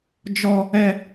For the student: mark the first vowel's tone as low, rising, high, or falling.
low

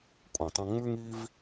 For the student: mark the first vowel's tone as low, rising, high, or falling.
low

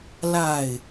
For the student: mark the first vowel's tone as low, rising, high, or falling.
falling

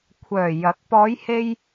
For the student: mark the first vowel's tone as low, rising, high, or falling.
low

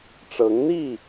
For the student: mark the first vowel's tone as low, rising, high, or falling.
rising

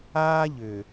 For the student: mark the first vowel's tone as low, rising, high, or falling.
high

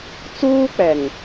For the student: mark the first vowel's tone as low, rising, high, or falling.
high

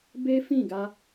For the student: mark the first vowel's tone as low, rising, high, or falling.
high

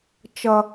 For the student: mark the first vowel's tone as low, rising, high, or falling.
high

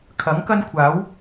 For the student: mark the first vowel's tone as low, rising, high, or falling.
rising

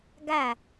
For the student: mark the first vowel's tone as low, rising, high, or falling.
falling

